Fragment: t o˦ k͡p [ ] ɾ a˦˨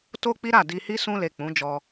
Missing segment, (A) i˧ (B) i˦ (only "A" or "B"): B